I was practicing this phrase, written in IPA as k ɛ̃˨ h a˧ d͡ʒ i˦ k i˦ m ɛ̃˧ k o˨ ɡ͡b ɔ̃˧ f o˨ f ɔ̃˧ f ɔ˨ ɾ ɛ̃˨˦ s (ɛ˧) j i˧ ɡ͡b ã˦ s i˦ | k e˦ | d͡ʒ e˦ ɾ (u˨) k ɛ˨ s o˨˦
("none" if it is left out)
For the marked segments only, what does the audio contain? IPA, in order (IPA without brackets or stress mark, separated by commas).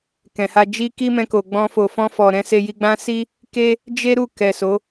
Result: e˧, u˦˨